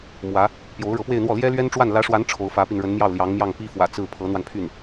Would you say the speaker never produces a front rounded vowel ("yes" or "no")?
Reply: no